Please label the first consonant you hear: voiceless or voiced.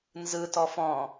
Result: voiced